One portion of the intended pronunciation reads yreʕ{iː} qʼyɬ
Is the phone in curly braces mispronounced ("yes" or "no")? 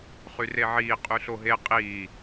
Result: no